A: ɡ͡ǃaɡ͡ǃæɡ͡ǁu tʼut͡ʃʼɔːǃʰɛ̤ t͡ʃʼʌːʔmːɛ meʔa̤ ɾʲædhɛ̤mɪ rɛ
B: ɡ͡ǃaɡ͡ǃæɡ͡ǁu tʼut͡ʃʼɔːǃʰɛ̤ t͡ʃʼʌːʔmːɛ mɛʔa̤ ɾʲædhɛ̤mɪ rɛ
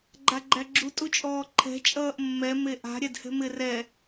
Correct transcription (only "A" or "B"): A